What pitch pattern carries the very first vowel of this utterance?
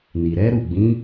low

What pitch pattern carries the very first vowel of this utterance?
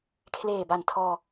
low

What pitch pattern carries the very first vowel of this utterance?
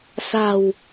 low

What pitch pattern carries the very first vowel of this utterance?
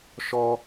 high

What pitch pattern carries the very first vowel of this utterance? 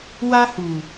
high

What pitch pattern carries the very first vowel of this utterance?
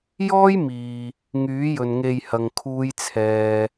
high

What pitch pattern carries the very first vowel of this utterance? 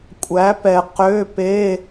rising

